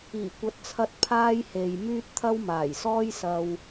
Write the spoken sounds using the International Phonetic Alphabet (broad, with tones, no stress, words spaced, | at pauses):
iː˨˩kʷɐ˨˥t̚t͡sʰɐ˧t̚ pʰaː˥jhe˨jmyː˥t̚ t̪ʰɐ˥wmaː˨˩jsɔː˥jsɐ˧w